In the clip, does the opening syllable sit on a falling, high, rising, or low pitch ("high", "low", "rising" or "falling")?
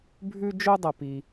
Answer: high